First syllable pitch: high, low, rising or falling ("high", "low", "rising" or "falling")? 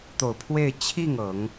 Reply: low